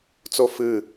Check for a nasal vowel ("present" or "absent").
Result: absent